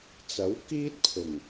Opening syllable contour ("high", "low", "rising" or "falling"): rising